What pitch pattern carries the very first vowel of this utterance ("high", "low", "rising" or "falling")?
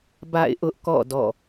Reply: falling